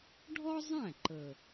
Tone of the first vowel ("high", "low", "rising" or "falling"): high